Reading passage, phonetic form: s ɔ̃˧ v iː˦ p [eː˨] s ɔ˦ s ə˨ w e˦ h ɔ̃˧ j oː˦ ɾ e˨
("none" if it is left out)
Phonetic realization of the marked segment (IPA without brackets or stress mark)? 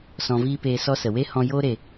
eː˧